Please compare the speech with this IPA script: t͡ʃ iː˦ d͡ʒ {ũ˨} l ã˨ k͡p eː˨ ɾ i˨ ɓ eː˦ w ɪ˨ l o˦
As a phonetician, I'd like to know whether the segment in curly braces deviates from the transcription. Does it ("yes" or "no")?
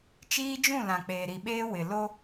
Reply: yes